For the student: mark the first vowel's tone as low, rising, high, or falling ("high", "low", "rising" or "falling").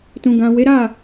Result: low